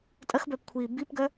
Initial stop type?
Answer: ejective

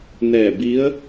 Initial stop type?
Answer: plain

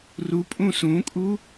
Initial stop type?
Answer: ejective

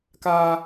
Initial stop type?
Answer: plain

